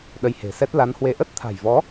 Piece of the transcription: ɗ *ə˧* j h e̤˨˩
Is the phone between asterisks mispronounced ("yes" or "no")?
no